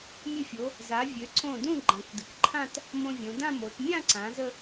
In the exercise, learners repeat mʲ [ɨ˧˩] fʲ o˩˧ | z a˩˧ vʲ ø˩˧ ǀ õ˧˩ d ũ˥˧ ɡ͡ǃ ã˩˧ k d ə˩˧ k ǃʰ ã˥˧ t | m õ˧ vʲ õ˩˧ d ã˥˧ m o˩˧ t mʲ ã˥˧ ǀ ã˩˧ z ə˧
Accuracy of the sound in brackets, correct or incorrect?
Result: correct